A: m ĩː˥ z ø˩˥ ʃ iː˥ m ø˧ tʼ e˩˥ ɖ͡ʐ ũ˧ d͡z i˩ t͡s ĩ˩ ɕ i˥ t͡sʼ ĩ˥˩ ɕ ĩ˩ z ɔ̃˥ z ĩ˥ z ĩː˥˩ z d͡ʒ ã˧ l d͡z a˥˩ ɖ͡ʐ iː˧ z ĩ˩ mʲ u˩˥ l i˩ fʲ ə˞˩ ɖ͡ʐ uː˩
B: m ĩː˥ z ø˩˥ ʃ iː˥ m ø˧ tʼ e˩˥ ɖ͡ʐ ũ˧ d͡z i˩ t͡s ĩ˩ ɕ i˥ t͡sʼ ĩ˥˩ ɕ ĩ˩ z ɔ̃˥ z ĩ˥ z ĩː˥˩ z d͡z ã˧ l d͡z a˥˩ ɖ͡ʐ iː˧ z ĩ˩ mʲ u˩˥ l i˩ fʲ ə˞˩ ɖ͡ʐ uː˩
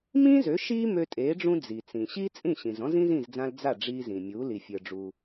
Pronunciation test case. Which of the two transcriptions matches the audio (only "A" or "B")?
B